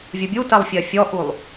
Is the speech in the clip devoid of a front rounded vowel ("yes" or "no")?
yes